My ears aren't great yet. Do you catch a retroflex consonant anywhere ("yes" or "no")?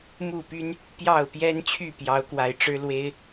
yes